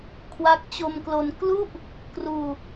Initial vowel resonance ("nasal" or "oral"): oral